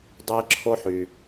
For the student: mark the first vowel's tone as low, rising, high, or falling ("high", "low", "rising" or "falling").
high